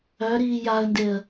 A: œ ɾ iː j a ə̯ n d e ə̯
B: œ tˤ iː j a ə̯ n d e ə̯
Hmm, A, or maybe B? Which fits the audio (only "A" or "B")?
A